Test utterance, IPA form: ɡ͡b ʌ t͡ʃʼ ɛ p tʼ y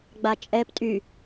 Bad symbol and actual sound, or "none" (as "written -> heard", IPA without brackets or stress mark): ʌ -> a